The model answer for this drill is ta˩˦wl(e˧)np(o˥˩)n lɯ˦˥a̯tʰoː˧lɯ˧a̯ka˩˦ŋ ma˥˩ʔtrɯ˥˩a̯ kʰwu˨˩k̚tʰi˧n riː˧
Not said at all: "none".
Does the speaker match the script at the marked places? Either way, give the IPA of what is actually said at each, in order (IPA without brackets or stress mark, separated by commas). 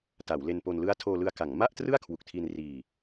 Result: e˧, o˧